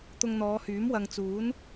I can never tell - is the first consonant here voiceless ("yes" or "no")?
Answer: yes